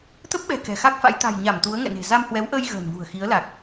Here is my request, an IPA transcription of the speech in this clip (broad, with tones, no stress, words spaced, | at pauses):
t̪ə˦˥p̚ɓɛ̤˨˩ kɛ̤˨˩xa˦˥k̚fa̰˧˥j t̪a̤˨˩jɲa˧˩m t̪u˨˦ə̯ŋɛ̰˧˨ne̤˨˩ za˧mhwɛ˨˦wʔəː˧j ɣə̤ː˨˩nvṳ˨˩ə̯ xi˨˦ə̯la˨˩k̚